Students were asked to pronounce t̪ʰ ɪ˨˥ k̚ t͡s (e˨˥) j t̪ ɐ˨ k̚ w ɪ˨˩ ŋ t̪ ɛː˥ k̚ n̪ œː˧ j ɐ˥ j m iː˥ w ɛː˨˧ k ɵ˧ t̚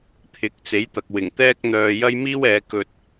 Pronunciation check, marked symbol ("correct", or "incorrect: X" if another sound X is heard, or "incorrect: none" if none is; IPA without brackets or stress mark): correct